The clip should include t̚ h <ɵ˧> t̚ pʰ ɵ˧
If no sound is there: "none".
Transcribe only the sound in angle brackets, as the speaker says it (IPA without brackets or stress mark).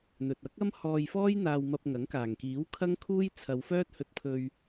ɵ˧